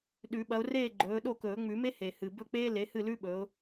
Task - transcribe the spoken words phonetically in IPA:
ɗ ʉ˨˩˦ ɓ ɐ˨˦ ʊ̯ r eː˥˨ ɡ͡ǃ ɵː˨˦ ɗ o˥˨ k ɵː˨˩˦ ŋ͡m ʉ˨˩˦ m e˥ h e˨˩ h ɨ˨˩ b ɵ˥˨ k͡p eː˥ l e˨˦ h ɨ˥˨ l ʉ˥ ɓ ɵ˨˦ ʊ̯

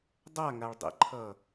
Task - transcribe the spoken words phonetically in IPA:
dˤ a ŋ a ɭ dˤ ɛ̰ ǃʰ ʌ

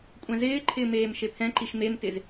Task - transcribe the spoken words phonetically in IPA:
kʷʼ ɛ̃ z ɪː ǃʰ ɪː m eː m ʃ e pʰ ɛ̃ ǃ i ʃ m e m t ɪ z

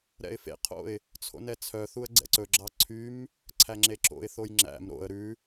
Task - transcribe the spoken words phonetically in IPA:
ɾ ɛ̰ ɪ̯ f ḛ qʰ o̰ ɪ̯ | t͡sʰ o̰ n ɛ t͡sʰ œ θ u ə̯ ɡ͡ǀ ɛ̰ ǀ ɵ ɡ͡ǁ ɑ ǀʰ y m | ǀʰ æ ŋ͡ǁ e ǁ o̰ ɪ̯ θ o j ŋ͡ǁ æ̰ m ɾ o̰ ə̯ ɾ ʉ

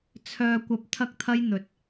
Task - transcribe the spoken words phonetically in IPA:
t͡sʰ œː˧ kʷ ɐ˧ p̚ t̪ʰ ɐ˥ k̚ t̪ʰ ɐ˥ j n̪ ɵ˨ t̚

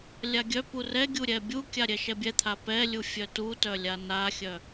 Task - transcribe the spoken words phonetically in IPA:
lʲ a ɡʲ œ p u r ɛ ɡʲ u ɾʲ ɛ bʲ u kʲ a ɾʲ ɛ ʃ ɛ bʲ ɛ t̪ʰ a p ɛ lʲ u fʲ œ t u t œ lʲ a n a xʲ œ

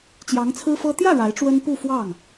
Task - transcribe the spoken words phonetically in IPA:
t͡ɕ j ɑ˧˥ ŋ t͡sʰ ɹ̩˥ f ɤ˥ t̪ j ä˥˩ ɻ a˧˥ ɪ̯ ʈ͡ʂ w ə˥ n p u˥˧ f w ɑ˥˩ ŋ

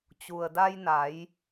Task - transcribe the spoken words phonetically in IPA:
t͡ɕ u˩ ə̯ d a˧ j n a˩˧ j

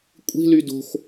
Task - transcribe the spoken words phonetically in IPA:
kʷʼ i̤ l y d o̤ x

